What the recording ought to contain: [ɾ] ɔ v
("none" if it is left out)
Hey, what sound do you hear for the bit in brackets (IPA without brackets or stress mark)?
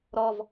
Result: ɾ